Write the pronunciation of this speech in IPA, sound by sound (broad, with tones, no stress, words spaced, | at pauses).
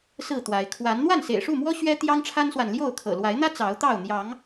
sɹ̩˥˨t̪wa˨˦ɪ̯ kʰwa˨˦n n̪wa˥˨nsḛ˨˩ɪ̯ʂu˥˨mwɔ˦ ɕɥɛ˦ t̪jɑ˦ŋʈ͡ʂʰa˦nswa˨n ljo˥˨ʊ̯ kʰɤ̰˨˩ lwa˨˦ɪ̯n̪ä˦ t͡sɑ˨˦ʊ̯t̪ɑ˥˨ʊ̯ n̪jɑ˨˦ŋ